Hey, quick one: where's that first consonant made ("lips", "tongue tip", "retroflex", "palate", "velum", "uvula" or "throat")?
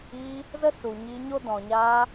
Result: tongue tip